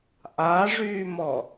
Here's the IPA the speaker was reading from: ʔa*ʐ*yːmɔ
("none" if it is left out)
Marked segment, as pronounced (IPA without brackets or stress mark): ʐ